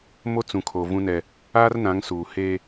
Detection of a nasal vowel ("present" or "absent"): present